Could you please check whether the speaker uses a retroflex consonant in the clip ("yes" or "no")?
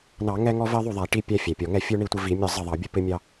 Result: yes